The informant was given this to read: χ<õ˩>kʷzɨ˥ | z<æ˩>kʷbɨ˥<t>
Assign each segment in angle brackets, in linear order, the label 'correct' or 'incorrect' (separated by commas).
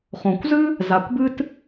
correct, incorrect, correct